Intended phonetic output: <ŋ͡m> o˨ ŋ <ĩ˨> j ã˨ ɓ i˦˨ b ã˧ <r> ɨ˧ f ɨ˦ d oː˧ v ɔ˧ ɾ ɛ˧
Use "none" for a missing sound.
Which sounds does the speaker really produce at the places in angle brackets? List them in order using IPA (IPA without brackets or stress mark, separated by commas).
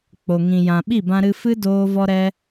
k͡p, ĩ˨, ɾ